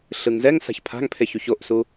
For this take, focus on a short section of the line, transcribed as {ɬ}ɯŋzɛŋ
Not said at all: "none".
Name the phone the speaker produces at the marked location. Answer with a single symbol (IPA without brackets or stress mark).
ɬ